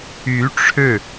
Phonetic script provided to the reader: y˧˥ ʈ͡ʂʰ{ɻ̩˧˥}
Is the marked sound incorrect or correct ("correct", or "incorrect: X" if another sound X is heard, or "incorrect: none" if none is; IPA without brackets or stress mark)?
incorrect: ɻ̩˥˩